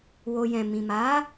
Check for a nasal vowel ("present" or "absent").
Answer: present